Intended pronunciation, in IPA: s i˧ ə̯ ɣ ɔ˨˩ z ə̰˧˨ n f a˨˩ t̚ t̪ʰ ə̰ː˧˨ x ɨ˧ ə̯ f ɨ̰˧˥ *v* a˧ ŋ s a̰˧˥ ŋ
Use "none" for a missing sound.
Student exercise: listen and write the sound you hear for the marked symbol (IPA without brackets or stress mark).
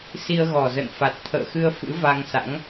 v